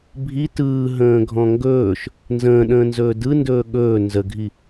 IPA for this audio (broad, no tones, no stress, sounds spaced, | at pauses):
bʱ i t ɯː ɦ ə̃ː ɡʱ ɔ̃ ŋ ɡ ɵː ʃ | n z ə̃ː ɗ ə̃ː n z ɵː d ɯ n d ɵː ɠ ɵː n z ə ɡʱ i